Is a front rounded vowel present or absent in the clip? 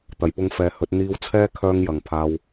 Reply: present